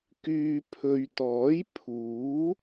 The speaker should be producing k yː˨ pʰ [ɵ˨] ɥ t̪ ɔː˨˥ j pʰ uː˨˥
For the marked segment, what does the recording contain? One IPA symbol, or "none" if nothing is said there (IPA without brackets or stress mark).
ɵ˨